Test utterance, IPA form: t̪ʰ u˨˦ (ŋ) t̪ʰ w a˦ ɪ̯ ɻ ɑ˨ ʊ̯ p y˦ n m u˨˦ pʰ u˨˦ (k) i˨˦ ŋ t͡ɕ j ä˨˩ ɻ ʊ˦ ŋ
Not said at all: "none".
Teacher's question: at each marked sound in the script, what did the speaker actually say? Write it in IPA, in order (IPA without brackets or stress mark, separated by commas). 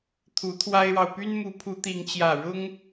none, t̪